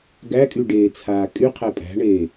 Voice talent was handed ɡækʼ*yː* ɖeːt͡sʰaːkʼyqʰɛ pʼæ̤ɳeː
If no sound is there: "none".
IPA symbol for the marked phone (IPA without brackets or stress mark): y